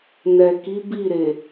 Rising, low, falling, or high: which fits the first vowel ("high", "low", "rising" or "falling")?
low